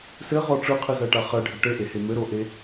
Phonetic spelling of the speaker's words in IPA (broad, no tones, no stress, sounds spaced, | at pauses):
s ɘ ʁ ɔ ʈ͡ʂ ɯ qʰ ɯ z ɜ ʈ a χ ɜ ɖʱ ɘ ʈ ɘ ʔ e h e m ɘ ɾ o ʔ e